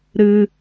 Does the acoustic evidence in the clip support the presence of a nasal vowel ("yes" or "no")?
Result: no